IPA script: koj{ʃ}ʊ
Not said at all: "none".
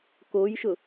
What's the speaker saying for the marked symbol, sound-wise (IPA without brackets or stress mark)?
ʃ